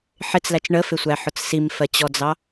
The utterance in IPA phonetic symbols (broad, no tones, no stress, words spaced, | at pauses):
ħɪt͡slæt͡ʃ ɳəfɪsʷæħʊt͡s simfɜt͡ɕɔd͡zɑ